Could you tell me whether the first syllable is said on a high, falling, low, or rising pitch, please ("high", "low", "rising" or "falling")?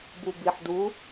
low